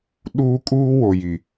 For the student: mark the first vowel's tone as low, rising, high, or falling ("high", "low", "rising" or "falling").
high